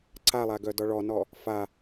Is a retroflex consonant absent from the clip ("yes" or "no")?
no